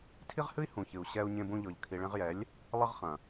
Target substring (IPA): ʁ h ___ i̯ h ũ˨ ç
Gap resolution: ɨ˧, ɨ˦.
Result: ɨ˦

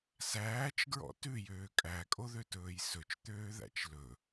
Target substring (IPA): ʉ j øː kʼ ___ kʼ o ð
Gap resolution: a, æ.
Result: æ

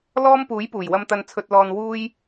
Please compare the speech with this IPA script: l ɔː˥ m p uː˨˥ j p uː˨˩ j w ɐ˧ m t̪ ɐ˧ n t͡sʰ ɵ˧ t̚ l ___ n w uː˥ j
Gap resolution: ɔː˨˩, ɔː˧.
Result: ɔː˧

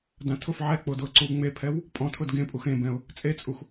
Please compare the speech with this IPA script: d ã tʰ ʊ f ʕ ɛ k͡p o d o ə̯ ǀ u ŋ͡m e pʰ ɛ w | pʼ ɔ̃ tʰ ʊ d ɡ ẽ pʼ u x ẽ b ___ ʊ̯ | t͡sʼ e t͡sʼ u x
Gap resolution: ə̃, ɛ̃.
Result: ɛ̃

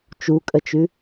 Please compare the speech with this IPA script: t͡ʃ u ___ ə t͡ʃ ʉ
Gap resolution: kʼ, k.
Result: kʼ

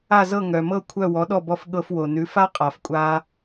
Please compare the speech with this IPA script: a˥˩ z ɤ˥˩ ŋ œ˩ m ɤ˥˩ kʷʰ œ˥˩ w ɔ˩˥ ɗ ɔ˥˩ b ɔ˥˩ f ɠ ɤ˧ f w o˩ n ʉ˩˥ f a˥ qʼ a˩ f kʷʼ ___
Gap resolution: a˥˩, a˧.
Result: a˧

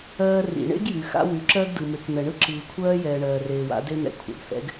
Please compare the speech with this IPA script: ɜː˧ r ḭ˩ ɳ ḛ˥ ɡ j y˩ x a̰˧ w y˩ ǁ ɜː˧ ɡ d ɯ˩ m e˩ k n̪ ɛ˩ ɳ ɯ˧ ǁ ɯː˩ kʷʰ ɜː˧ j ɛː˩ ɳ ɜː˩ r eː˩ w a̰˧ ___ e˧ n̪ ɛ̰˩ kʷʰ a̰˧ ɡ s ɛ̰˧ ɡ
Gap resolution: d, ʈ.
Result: d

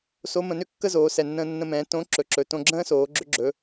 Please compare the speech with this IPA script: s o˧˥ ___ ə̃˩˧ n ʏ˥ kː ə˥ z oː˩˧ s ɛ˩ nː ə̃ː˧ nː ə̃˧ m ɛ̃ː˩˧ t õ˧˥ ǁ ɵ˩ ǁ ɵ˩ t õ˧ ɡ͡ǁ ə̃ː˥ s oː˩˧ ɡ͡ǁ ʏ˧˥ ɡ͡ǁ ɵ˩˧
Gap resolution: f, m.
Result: m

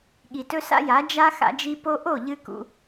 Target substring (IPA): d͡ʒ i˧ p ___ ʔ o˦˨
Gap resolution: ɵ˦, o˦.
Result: o˦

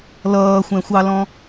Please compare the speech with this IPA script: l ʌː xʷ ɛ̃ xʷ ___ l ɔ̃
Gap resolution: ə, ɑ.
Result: ɑ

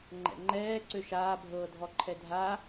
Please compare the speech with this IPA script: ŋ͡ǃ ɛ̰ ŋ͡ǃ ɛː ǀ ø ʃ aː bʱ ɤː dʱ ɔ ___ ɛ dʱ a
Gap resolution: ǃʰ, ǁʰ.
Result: ǃʰ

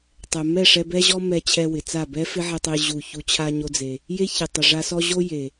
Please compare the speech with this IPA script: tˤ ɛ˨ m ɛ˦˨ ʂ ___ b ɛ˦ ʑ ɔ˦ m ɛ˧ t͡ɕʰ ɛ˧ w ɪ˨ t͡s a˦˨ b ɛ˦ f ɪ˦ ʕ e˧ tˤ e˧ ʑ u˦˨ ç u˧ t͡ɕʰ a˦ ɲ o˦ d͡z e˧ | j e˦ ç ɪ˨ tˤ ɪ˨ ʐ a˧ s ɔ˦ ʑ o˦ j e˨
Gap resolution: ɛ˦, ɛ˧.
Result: ɛ˧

